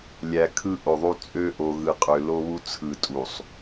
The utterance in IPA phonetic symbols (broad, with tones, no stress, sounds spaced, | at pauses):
lʲ æ˨ kʰ ɯ˦ ʔ o˨ ðˤ u˦ t͡sʼ ø˦ ʔ o˨ ɣ ɯ˨ qʼ ø˨ l o˦ β u˦ t͡sʰ ɯ˨ tʼ u˨ sˤ